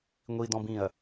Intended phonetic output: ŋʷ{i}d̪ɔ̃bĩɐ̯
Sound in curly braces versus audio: correct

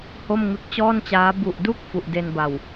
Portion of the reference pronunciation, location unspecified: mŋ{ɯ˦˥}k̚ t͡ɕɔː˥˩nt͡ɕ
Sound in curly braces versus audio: correct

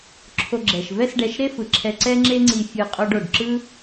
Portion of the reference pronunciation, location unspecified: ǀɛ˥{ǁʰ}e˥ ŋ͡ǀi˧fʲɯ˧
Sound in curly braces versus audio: incorrect: ŋ͡ǁ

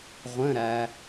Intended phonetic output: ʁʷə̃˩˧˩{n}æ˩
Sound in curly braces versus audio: incorrect: ɾ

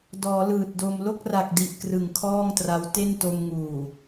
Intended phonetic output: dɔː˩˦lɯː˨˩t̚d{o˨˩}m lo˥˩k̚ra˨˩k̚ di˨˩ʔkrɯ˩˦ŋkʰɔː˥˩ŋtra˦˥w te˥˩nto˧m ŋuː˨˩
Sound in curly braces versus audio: incorrect: o˧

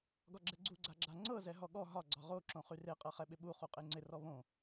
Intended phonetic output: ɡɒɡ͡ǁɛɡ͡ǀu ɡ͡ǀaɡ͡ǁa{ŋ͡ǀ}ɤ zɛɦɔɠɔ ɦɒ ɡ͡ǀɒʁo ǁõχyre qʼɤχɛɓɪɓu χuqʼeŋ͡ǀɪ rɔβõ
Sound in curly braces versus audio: correct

